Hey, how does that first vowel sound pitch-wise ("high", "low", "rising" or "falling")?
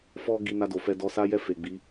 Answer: high